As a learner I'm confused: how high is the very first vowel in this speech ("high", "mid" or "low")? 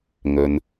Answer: mid